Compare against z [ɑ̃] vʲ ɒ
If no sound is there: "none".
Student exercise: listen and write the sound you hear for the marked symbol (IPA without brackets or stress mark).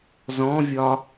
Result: ɔ̃